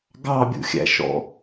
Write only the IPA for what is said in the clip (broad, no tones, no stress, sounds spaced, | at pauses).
ɡ ɑ bʲ ṵ xʲ æ̰ ʃ ɔ̰